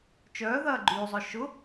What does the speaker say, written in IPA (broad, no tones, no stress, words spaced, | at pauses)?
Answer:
t͡ʃœː ðɐːɡ͡ǃyːzˤœ ʃʊ